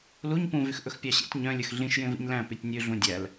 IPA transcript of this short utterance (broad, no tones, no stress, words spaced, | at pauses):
luɲ pũvyx ʔɵxpʲɑɕḛtʲ ɲœ̃lʲɵx ɮĩʃ jẽvḭɲlæ̃ pytʲnʲʉɮũ dʲæl